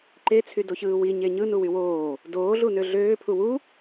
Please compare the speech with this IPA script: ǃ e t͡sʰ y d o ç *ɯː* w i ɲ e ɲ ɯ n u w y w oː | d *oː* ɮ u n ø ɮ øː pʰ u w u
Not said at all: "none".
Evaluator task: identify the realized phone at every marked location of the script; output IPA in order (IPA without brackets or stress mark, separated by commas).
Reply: ɯː, oː